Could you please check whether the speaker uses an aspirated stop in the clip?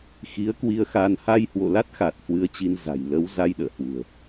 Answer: no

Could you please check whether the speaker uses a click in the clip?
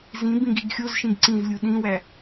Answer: yes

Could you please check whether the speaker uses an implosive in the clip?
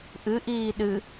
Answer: yes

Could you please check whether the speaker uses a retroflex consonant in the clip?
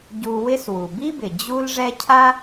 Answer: yes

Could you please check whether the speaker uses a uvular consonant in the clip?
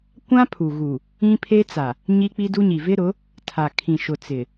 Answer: no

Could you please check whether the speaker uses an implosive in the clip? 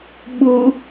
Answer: yes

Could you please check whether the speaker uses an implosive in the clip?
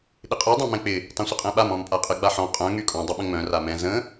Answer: yes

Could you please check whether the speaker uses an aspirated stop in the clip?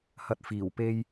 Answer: no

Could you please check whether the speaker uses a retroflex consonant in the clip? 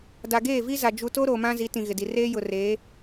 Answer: no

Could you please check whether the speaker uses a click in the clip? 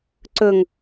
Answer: yes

